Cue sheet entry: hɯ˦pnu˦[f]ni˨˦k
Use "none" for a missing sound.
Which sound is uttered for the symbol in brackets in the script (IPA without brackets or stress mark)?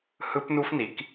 f